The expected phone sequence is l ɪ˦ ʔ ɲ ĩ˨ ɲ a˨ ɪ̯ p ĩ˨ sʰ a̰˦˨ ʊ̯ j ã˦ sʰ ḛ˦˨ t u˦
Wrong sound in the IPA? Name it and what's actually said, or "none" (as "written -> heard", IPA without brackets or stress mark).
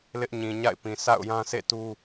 a˨ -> a̰˦˨